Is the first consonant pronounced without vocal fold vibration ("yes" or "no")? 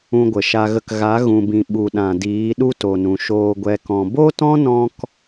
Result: no